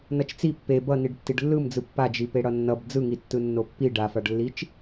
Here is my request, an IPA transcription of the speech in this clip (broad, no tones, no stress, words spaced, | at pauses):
nʌt͡ʃt͡si pːe bʌ niɖtːiɖlːɯmd͡zɯ pːad͡ʒi peɽʌnːʌb d͡zɯŋi tːɯnːopːi ɖafaɖlːit͡ʃ